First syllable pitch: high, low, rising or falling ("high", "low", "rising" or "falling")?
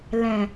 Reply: low